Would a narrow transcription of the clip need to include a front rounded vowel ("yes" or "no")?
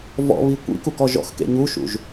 no